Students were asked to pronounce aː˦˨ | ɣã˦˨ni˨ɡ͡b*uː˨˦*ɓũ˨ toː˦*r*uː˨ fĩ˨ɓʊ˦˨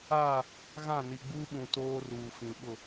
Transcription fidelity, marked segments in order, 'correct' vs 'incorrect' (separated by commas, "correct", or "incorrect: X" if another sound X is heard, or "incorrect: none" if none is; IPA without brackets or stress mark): incorrect: uː˦, correct